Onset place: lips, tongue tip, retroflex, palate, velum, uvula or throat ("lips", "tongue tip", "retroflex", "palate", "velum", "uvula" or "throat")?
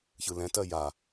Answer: palate